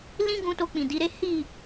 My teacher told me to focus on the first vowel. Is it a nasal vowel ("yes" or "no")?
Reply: yes